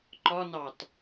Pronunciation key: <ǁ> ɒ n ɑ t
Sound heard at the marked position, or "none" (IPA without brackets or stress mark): ǃ